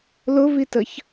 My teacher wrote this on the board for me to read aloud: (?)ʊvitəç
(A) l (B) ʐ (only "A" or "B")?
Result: A